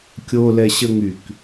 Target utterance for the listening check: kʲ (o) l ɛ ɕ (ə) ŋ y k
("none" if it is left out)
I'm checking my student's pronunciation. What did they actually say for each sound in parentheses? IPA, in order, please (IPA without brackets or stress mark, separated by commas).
o, ə